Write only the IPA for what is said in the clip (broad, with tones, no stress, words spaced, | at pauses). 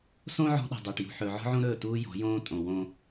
sõ˦ ʕɔ̤˦ɗṳ˨dˤɵː˨ʈ jṳ˨ħɵː˨ʕɔ̤˦ʕõ˦ ɾɵː˦˨tuː˦jɔ̤˨˦jõː˦ tʼõ˨wõ˦